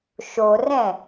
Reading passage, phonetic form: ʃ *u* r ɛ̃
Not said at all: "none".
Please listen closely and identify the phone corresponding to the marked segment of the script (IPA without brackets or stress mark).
o